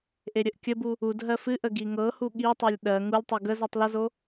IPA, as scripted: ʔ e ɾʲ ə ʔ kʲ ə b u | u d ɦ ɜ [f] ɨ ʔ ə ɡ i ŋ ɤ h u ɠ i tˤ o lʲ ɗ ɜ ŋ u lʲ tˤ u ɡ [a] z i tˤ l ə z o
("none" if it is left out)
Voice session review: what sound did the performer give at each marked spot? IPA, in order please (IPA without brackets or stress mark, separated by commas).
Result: f, ə